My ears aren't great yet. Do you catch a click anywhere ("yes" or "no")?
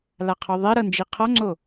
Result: yes